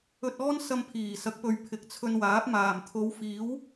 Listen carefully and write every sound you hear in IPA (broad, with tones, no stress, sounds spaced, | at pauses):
ɵ˧ t̚ ɔː˥ n s ɐ˧ m pʰ iː˨˩ s ɐ˨˥ k̚ p ɵ˨ ɥ pʰ ɪ˨ k̚ t͡sʰ ɵ˧ n w aː˨˥ p̚ m aː˨˩ m t̪ʰ o˨˧ w f iː˨˥ w